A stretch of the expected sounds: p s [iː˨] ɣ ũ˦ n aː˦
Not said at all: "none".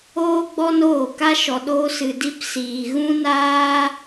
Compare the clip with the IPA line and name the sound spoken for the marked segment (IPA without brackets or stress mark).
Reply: iː˨